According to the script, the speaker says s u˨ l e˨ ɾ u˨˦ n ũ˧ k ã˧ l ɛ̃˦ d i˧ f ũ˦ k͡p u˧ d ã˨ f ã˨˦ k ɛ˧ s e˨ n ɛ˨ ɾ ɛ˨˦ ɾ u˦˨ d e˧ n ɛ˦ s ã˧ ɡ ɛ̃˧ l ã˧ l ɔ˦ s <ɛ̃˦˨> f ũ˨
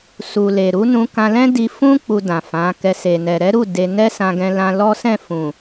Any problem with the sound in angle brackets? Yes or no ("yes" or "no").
no